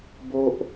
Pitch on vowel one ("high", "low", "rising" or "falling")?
high